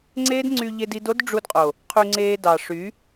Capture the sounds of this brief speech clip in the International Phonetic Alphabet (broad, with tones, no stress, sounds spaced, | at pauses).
ŋ͡ǀ eː˦ d ŋ͡ǀ y˧ ʎ e˧ d i˧ d o˦ d ɖ͡ʐ u˧ d qʼ o˨ | qʰ y˧ ŋ͡ǀ eː˧ d ɑ˨ ʂ y˨˦